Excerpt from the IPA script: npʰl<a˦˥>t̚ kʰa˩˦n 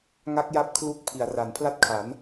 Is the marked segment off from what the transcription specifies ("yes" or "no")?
no